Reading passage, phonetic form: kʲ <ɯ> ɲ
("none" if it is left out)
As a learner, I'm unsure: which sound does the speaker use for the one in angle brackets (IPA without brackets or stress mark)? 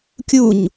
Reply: u